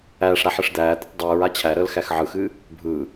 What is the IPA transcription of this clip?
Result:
æːʂɾa ħɨʂd̪æːd̪ɯtˤ dˤɯːɹa t͡ɕʰæɾəːl xæxʕɯxɨː | bʱɯː

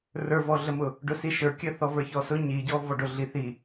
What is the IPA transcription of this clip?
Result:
rə˞vɔɮəmʊ | ɖʊsiʃə˞kʲə θɔvə˞çɔsʊ ɲiɟɔvɔɖʊ ɮiθi

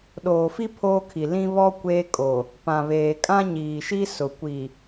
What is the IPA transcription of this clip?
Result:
ɗoː˨fi˦ pʰoː˦kʰi˨ lĩ˦βɔ˦ kʷeː˦kʼo˨ | pã˨βeː˨ kʼã˦ɲiː˨ʃi˦ sʊ˨ kʷi˨

